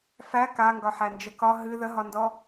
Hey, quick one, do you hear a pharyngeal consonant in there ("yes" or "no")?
yes